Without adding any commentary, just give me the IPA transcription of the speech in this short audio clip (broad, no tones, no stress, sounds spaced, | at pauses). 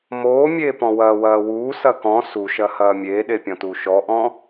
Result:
m oː mʲ eː p ɔ̃ w ɐː w ɐː w uː s ɐ k ɔ̃ s u ʃ ɐ h ɐː mʲ eː ɗ e pʲ ɔ̃ t uː ʃ ɔ ʔ ɔ̃